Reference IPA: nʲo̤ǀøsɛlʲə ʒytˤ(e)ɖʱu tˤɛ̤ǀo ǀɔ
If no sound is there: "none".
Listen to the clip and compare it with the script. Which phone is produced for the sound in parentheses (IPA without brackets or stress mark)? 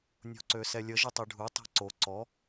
e